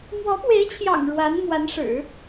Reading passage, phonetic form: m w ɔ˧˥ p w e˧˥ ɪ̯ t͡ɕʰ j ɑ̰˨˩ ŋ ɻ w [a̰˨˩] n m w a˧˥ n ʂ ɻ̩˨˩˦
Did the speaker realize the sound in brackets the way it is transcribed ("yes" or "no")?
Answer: no